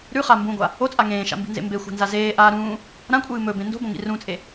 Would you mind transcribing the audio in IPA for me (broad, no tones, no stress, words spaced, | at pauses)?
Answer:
ɾʉχa mbũɡʷa | ot͡sʼa ŋẽːʃa̰mbi̤nzḛ mbexʷa̤nza zeːʔaː ɾũː | ɾãkʷʼɨː mɵbẽ ndo̤bõŋḭ rũt͡sʼe